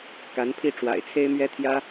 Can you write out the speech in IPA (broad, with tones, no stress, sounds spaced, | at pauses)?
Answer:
k a˧˥ n pʰ i˥˩ ʈ͡ʂ w a̰˨˩ ɪ̯ t͡sʰ e˥ ɪ̯ m ɥ ɛ˥ t̪ʰ j ä˥